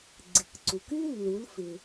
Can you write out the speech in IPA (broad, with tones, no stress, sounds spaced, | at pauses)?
ɡ͡ǀ ɪ˩ k ǀ u˩ k y˥ lː u˩˧ l f ɪ˩